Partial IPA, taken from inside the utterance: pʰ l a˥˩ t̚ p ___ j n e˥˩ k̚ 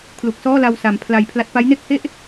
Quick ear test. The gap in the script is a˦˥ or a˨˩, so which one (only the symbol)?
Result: a˦˥